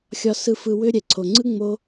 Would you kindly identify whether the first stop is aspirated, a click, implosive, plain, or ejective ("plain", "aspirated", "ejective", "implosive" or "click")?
click